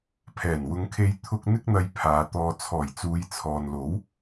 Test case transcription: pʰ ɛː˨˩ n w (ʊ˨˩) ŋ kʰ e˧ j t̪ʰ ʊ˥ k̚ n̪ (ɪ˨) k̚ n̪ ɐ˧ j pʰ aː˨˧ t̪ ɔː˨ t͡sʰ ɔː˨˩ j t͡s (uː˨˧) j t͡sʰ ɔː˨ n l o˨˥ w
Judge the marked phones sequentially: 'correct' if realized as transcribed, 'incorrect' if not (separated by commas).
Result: incorrect, incorrect, correct